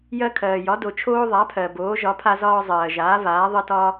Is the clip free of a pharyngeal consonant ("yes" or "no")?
yes